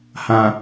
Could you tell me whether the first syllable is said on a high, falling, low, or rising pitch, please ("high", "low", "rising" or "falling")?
low